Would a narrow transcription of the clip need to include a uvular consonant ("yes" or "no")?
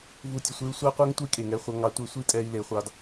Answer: yes